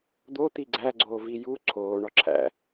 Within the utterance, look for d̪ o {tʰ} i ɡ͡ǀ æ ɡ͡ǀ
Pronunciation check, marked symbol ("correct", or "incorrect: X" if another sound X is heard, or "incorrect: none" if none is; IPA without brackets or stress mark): incorrect: t̪